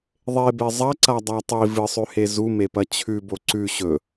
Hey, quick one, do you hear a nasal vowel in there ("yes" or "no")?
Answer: no